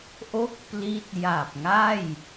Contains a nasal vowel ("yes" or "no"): no